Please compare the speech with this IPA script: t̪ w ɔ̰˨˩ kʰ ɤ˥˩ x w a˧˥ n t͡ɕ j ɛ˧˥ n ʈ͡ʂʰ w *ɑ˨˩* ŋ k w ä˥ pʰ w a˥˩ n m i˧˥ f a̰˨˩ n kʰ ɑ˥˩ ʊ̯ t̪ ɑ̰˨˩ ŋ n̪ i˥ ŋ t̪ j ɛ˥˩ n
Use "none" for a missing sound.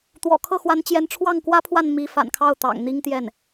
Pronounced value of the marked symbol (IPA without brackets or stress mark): ɑ˥˩